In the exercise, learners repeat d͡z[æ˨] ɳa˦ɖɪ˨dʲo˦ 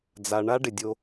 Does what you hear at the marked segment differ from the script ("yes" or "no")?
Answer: yes